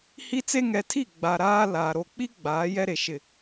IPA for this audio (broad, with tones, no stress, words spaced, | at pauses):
hi˦t͡se˦ ŋɛ˨tʰi˦˨ ɡ͡ba˨ɾaː˦ la˨ ɾo˨k͡pi˦ ɡ͡baː˨˦jɛ˦ɾe˨ʃɪ˦˨